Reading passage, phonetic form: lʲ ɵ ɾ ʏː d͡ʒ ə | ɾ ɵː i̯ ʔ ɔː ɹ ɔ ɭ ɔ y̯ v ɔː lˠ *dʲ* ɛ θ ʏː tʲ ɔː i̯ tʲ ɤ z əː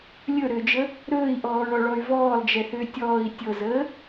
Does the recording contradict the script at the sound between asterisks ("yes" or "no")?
yes